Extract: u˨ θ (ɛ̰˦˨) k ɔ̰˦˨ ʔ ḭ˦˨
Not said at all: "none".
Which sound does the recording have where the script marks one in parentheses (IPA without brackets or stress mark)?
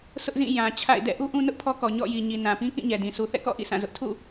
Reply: ɛ̰˦˨